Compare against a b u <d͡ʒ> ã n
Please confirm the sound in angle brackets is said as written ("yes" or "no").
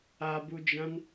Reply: yes